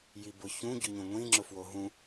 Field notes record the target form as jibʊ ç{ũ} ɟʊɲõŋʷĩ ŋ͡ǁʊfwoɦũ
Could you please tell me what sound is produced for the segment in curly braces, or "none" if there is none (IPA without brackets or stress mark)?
ũ